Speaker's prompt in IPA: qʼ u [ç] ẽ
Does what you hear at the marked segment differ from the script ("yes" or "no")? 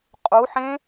yes